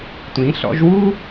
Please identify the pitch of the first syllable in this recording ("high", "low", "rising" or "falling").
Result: rising